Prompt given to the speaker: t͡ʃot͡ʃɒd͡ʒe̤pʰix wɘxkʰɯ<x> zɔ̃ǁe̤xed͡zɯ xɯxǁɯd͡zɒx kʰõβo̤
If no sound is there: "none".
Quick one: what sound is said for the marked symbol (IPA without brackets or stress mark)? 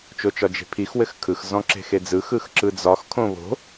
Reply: x